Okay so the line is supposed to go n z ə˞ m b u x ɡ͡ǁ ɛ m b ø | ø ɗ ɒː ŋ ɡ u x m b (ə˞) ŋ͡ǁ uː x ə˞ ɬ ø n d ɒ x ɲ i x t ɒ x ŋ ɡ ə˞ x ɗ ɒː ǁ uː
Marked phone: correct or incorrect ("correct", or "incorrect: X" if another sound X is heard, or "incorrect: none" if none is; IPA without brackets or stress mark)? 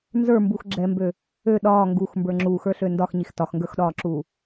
correct